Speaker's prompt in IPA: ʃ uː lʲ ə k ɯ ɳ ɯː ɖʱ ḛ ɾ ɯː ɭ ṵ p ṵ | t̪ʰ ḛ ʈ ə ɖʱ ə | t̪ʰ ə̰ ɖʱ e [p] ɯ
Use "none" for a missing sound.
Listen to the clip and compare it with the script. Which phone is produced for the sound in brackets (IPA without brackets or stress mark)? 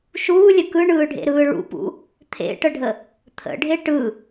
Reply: ʈ